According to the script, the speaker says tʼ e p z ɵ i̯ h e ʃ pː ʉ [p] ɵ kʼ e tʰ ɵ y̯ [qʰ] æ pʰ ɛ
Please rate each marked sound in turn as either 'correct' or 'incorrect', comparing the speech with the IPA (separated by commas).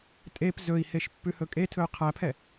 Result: incorrect, correct